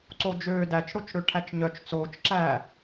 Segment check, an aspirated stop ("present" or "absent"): present